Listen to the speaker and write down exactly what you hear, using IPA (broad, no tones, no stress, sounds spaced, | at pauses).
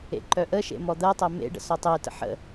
ḛ ǃ œ ʔ ə ʃ ḛ m ɔ d̪ ɜ tˤ ɜ m ḛ ɖ ə̰ s ɔ tˤ e t ə̰ ħ ə̰